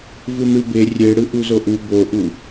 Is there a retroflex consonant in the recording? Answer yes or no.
yes